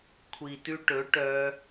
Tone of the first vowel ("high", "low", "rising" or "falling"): low